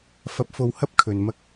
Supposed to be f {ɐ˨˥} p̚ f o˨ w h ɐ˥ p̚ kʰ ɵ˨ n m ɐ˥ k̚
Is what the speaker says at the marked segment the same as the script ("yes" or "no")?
yes